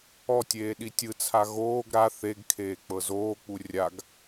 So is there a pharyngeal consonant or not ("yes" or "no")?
no